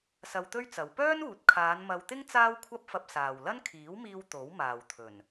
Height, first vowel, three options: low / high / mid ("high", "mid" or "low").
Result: low